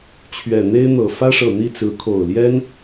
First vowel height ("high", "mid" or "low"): mid